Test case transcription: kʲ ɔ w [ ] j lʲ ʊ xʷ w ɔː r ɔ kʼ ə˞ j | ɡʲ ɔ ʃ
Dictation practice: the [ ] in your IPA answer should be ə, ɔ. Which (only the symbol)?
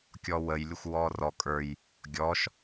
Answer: ə